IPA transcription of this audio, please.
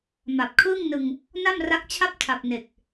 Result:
ma˨˩p̚kʰɯː˥˩ŋnɯ˧ŋ | na˥˩mra˦˥k̚t͡ɕʰa˥˩p̚tʰa˨˩p̚ ne˨˩k̚

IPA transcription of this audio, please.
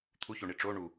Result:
t̪ʰuçoɳi ʈ͡ʂo ɳu

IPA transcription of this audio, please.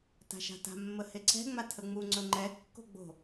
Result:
ta̤ʃa̤ta̤ mːəheǀɛ̤ ŋ͡matʰəŋ͡mu ŋ͡ǀɵŋ͡ǃɛ kːo̤ɡ͡bo̤

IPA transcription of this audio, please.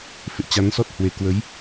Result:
fḛ˧˨ t͡ɕa˨˦nsɔ˦˥t̚ hwe˨˩ kwə˨˦j

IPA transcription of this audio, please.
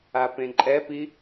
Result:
apẽǃʼɛpi

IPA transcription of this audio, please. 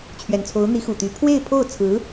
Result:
t͡ɕʰɥɛ˨˩nt͡sʰo˧˥ʊ̯ n̪i˧˥xu˨˩t̪y˧˥ pʰwe˥˧ɪ̯pʰo˥˩ʊ̯t͡sʰɹ̩˧˥

